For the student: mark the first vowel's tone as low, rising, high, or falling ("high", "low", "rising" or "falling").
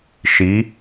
rising